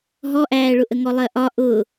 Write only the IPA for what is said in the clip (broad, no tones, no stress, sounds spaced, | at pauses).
ɦ ɔ ʔ æː ɭ ʊ ʔ ə ŋ ɔ lˠ ɜ ʔ ɒ ʔ ʊ